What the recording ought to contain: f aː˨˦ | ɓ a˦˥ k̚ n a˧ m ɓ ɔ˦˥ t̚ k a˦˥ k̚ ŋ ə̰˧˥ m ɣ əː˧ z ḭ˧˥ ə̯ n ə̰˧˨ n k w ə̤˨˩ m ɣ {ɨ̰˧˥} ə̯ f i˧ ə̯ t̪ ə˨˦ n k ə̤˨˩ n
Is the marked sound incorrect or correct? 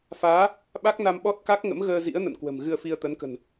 incorrect